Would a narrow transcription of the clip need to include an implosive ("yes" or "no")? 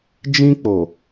no